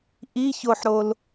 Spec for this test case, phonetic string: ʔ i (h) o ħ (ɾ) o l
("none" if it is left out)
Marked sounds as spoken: ç, ɾ

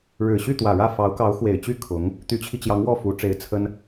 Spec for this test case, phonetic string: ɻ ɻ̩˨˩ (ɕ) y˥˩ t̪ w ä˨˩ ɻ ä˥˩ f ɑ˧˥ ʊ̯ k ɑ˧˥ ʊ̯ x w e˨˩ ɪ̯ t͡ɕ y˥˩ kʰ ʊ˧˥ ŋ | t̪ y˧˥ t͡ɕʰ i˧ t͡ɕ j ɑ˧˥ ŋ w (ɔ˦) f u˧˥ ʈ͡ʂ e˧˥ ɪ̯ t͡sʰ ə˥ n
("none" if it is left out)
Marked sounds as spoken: ɕ, ɔ˥˩

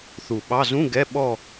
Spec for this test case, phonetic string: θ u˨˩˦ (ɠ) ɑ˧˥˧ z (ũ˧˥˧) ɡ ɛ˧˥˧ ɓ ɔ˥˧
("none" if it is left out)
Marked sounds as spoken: ɓ, ũ˧˥˧

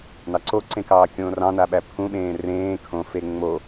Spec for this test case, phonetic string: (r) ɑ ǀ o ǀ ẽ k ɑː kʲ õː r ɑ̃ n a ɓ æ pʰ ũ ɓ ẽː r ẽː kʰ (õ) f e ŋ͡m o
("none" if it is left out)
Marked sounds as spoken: n, õ

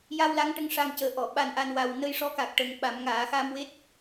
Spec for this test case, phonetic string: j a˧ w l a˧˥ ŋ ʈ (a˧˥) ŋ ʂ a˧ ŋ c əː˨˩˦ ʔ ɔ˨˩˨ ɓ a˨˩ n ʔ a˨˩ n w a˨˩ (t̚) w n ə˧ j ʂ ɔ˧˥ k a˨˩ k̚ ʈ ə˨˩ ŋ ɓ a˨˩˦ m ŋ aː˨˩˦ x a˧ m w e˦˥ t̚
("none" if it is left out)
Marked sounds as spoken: ə˧˥, none

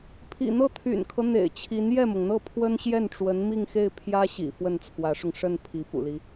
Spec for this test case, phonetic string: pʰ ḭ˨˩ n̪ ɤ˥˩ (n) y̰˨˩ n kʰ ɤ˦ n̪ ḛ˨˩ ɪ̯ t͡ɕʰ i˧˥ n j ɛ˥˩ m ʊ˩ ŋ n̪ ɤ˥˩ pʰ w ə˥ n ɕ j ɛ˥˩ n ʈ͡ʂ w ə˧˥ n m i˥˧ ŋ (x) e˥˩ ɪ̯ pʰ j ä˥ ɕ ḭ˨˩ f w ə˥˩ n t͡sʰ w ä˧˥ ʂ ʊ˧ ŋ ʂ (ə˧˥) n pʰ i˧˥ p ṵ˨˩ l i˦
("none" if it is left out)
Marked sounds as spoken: t̪ʰ, x, ə˥˩

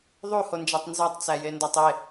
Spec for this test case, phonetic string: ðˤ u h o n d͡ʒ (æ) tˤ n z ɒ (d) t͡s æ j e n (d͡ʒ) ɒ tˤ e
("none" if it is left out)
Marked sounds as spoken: æ, tˤ, d

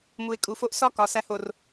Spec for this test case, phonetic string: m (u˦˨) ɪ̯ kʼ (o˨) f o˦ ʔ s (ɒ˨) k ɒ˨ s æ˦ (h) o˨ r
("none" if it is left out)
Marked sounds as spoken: u˨, u˨, ɒ˦, h

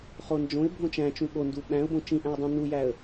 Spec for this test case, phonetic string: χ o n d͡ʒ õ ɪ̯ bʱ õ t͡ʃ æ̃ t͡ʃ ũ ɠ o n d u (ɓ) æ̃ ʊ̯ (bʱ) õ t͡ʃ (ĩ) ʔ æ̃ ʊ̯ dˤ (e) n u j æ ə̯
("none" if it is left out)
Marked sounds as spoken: ɓ, b, ĩ, ẽ

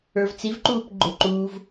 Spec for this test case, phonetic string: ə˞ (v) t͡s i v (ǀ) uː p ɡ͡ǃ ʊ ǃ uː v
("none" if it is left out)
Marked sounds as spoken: v, ǃ

